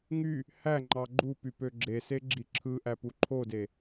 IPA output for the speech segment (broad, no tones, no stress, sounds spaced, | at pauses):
ŋ y | h æ ŋ͡ǃ ɑ ɡ͡ǃ u p y p ø ɡ͡ǁ e s e ɡ͡ǁ i ǁʰ ɯ ʔ æ p u ǃʰ o d e